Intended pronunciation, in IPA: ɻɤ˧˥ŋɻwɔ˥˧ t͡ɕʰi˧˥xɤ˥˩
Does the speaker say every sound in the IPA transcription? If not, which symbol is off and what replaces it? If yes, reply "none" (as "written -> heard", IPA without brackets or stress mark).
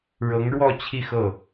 i˧˥ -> i˥˧